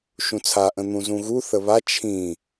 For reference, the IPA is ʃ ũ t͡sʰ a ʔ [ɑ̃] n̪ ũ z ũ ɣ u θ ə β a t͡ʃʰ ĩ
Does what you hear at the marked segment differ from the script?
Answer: yes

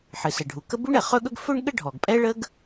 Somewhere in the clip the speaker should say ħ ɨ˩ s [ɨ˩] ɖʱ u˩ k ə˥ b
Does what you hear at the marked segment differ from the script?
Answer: yes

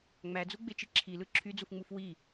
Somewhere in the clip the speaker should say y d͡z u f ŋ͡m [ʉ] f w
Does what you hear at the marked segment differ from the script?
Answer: yes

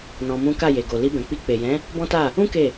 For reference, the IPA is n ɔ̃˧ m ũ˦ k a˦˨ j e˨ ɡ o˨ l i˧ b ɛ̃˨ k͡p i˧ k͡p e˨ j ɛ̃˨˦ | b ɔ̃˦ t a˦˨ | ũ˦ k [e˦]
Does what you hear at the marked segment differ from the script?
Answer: yes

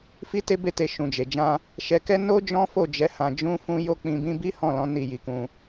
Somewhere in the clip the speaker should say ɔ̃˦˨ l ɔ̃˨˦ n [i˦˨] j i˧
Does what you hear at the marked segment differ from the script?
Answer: no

